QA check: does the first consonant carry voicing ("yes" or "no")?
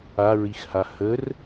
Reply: yes